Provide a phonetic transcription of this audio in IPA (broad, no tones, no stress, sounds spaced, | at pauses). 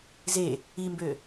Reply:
z e | i m b ø